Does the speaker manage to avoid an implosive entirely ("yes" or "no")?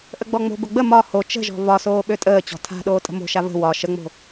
no